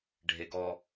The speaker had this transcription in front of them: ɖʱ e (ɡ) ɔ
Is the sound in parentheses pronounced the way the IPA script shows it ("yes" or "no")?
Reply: yes